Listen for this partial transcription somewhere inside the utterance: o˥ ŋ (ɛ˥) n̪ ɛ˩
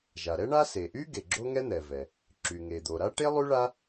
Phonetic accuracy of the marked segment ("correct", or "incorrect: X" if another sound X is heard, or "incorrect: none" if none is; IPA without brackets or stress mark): correct